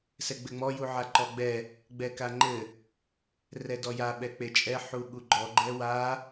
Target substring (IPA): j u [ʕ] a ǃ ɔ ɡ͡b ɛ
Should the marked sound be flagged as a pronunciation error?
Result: no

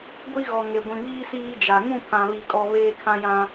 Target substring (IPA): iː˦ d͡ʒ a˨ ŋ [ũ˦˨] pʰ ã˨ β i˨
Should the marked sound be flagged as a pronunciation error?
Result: no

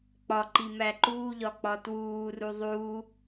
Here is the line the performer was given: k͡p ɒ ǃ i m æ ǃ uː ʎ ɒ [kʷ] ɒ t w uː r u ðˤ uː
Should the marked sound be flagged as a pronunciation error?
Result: yes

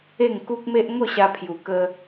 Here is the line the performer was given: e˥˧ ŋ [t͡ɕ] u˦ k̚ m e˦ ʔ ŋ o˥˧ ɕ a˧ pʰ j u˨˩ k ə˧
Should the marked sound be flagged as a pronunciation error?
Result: yes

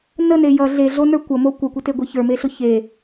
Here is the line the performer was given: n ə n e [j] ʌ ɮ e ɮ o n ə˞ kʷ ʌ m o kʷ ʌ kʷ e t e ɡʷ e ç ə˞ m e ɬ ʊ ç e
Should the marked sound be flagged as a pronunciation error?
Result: no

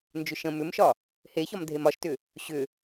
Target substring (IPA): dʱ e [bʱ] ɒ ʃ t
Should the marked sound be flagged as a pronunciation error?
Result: yes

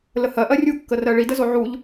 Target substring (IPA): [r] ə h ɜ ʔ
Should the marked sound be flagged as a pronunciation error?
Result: yes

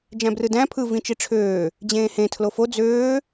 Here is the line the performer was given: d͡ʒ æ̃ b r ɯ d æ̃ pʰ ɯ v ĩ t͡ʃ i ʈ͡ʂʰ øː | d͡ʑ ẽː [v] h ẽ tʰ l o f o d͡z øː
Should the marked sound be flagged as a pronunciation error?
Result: yes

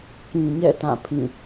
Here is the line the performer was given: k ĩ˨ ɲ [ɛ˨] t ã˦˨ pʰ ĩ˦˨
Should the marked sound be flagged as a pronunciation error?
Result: yes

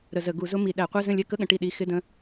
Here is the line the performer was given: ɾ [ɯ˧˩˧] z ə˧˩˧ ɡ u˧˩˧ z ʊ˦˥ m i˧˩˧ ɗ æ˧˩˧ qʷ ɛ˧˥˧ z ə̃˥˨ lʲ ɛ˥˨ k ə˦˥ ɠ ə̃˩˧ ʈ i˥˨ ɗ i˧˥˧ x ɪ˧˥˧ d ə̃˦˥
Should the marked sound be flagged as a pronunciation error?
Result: yes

